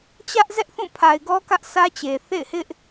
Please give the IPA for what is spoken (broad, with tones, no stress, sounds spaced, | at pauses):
t͡ɕ ä˦ ʔ z ɛ˦ ʔ θ ũ˦˨ pʰ a˨ ɪ̯ ɡ ɔ˦ k ä˦ ʔ s ä˦ t͡ɕ e˨ θ ḛ˦˨ ɪ̯ h ɪ˦ ʔ